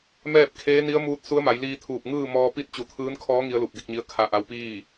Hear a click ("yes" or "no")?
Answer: no